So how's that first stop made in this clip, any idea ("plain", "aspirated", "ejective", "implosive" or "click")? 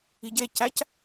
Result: plain